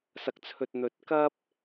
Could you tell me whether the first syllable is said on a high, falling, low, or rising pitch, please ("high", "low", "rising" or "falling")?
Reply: low